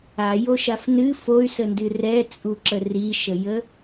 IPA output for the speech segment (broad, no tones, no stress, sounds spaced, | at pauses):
a j o ʃ a f n ɨ f o y̯ s ə n d ɨ r ɛ t͡sʼ u ǁ ə r i ʃ ə j ə